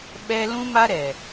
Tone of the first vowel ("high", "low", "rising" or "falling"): high